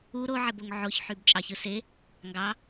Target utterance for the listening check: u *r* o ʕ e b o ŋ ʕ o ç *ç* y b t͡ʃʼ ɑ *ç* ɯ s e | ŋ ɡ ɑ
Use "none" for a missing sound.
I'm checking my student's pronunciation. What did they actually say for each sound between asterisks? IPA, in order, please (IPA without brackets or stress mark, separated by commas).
ɾ, ħ, ç